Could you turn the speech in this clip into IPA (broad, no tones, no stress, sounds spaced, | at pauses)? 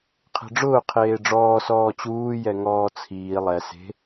qʰ e̤ ɖ͡ʐ ʊː qʰ eː ɖ͡ʐ ɔː s ɔː t͡ɕ uː j ɛ ŋ ɔː t͡sʰ iː lˠ ɛ s e̤